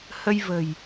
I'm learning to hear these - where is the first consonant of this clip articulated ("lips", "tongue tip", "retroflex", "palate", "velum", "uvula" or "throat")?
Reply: throat